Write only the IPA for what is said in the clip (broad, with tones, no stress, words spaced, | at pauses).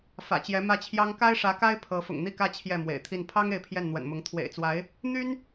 fä̰˨˩t͡ɕjɛ˧˥mä˥˩t͡ɕʰjɑ˥ŋ ka˥ɪ̯ʂä˧˥ka˥ɪ̯ pʰɤ˧˥ fʊ̰˨˩ŋn̪i˥˧kä˥˧ t͡ɕʰjɛ˥˩mwḛ˨˩ɪ̯t̪ʰi˥˩n pʰɑ˥ŋ e˥˧ɪ̯pʰjɛ˥˩nn̪wə̰˨˩nmʊ˧˥ŋ t̪ʰwḛ˨˩ɪ̯t͡swa˧˥ɪ̯ | n̪y˥n